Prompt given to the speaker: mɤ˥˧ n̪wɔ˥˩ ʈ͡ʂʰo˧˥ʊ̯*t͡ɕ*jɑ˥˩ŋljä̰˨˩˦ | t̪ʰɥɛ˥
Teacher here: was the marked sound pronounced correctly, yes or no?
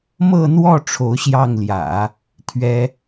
no